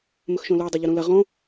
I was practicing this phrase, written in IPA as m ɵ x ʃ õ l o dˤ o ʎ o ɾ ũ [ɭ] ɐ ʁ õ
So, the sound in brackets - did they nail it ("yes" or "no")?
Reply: no